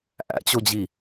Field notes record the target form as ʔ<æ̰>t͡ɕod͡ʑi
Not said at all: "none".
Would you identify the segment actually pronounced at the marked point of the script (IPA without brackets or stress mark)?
æ̰